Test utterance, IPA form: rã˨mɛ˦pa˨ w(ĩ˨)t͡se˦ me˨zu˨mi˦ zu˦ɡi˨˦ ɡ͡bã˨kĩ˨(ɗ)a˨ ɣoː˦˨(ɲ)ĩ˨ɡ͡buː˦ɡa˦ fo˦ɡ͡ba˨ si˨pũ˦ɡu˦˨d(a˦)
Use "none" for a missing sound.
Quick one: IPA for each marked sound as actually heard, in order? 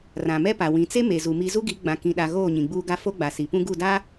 ĩ˨, ɗ, ɲ, a˦

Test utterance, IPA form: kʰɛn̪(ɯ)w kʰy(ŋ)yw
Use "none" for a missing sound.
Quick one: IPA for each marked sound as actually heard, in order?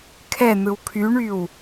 ɯ, ɳ

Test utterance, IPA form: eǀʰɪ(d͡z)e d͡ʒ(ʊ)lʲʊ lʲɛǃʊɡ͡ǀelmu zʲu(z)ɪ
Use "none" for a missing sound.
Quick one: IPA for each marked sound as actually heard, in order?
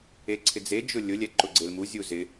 d͡z, ʊ, z

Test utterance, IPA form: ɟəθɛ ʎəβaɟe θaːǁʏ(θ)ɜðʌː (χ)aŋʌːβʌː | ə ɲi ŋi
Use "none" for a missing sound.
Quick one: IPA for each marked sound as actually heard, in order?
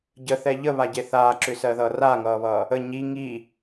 s, r

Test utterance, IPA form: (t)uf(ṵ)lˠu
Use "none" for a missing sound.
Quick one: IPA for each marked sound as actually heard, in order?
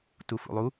t, ṵ

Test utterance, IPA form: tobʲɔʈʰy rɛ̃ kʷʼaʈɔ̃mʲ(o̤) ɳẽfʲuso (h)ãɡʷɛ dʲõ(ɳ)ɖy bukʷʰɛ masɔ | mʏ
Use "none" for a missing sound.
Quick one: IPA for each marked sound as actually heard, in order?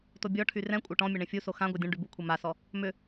o, x, ɳ

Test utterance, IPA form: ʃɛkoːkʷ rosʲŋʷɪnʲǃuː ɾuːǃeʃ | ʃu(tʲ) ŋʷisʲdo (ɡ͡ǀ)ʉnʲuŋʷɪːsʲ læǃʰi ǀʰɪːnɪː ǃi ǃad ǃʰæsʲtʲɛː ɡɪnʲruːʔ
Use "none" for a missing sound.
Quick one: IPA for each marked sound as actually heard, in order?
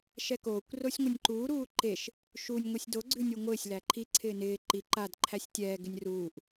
nʲ, ɡ͡ǀ

